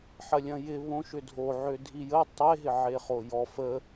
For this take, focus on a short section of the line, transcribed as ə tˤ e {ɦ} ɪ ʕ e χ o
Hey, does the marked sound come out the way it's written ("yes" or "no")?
yes